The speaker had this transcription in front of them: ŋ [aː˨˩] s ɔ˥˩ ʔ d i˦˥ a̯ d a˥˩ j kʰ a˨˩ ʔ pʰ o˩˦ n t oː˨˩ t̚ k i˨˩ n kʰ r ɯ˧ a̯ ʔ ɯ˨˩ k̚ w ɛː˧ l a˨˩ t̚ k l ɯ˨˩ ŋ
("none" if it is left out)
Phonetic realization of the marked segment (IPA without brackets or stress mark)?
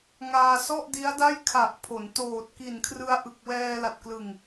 aː˧